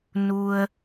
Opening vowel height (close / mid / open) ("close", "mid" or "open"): close